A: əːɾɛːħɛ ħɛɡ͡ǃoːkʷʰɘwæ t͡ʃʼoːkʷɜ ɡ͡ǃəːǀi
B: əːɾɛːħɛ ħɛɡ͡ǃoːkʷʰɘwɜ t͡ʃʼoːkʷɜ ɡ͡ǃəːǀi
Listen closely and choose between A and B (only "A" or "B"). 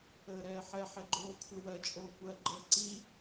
B